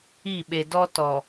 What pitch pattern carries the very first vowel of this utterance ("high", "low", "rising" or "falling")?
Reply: falling